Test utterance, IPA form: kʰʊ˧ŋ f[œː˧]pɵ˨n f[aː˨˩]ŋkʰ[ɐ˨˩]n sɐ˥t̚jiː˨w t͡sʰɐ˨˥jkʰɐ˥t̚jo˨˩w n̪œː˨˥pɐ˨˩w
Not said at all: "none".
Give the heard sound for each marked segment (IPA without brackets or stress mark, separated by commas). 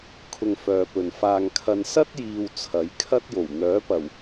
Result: œː˨, aː˧, ɐ˧